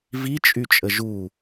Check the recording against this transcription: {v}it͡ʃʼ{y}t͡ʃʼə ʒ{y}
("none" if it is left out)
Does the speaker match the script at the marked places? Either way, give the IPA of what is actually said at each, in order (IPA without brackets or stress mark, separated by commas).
v, y, u